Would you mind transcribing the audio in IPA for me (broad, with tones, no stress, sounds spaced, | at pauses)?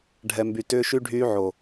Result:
ɖʱ ɛ˨ m b y˨ t ʏː˦ ʃ y˦ ɖʱ yː˦ ʕ o˨